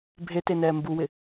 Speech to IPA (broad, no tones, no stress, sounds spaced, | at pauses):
bʱ e t e n ɛː m b u w ɪ